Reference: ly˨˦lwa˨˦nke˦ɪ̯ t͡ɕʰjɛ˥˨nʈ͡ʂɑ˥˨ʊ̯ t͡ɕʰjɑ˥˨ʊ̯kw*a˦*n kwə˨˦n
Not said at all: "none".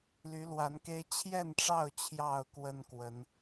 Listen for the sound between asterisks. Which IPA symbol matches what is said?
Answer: ə˦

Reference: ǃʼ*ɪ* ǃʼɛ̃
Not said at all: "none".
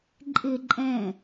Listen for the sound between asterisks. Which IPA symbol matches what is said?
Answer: ɪ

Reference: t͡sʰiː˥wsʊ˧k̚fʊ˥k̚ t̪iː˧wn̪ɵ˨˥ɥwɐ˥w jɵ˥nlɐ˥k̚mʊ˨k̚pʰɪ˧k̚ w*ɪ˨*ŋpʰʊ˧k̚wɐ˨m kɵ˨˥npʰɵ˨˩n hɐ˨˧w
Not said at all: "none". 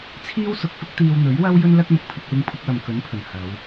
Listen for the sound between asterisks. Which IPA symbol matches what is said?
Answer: ɪ˧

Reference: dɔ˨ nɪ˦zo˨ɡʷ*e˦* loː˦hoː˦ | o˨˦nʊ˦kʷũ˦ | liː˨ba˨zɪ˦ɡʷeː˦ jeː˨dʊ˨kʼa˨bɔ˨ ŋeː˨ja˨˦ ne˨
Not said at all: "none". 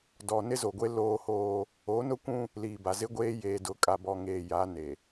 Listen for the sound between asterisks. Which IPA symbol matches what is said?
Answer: e˦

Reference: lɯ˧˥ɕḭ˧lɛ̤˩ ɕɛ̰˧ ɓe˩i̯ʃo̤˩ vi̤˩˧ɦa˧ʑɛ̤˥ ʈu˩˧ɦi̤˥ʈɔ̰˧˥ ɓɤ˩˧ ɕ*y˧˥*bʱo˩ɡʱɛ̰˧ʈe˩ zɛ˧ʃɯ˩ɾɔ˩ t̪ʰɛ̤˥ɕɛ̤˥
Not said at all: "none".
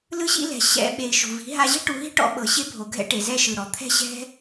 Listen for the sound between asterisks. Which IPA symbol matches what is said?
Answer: e˧˥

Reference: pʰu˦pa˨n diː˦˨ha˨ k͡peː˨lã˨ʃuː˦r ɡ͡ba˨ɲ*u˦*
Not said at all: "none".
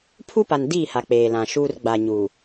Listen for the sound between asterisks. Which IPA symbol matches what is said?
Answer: u˨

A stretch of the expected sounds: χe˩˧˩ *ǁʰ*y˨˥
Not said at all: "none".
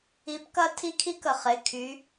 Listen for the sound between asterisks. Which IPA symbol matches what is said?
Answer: kʰ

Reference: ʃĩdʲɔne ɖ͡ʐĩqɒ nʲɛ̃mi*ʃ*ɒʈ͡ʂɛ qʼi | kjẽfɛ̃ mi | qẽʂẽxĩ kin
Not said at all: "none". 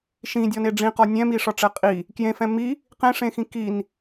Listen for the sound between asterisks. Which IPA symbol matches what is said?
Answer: ʂ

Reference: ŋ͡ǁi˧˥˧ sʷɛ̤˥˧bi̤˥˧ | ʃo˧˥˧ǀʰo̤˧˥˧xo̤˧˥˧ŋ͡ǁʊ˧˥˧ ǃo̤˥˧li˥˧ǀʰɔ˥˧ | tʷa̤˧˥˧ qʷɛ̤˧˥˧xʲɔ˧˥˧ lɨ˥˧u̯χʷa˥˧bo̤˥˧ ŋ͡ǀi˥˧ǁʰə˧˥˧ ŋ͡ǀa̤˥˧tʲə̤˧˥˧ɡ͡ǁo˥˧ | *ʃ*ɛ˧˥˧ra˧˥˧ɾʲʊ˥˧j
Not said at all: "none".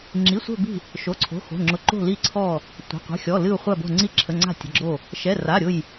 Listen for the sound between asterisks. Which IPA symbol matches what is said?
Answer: ʃ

